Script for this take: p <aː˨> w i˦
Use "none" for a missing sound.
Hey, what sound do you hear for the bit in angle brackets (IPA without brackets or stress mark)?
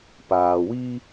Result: aː˨